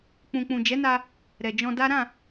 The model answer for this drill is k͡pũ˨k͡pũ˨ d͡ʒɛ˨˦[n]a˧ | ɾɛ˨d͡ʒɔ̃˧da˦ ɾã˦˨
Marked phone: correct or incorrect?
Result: correct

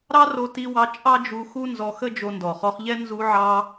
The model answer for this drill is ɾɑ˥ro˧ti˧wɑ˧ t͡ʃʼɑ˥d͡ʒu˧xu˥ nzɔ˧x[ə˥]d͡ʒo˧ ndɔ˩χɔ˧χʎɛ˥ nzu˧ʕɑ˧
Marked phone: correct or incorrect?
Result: correct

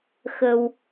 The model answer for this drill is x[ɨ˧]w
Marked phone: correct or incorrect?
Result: incorrect: ə˧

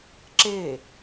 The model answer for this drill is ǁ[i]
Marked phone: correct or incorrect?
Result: incorrect: e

